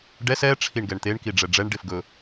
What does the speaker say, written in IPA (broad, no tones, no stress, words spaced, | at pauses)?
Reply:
ɖɛs ɛʈ͡ʂʰiɳ ɡɛɳt̪eɳki ɖ͡ʐɛɖ͡ʐɛɳɖef ɡɵ